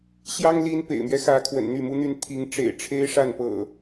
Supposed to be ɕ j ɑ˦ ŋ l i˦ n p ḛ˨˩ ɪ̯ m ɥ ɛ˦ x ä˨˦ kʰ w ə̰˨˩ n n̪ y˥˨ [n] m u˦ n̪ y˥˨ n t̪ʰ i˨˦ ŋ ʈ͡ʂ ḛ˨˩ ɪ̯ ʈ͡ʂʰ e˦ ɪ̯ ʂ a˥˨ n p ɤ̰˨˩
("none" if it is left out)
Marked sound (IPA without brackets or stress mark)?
none